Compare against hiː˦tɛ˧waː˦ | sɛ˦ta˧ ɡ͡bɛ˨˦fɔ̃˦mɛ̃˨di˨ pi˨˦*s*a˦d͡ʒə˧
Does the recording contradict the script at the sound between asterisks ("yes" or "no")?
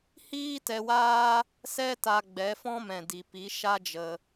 yes